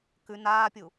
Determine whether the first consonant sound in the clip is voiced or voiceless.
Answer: voiceless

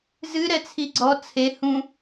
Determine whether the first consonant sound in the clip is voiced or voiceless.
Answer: voiced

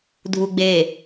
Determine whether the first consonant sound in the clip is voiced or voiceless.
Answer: voiced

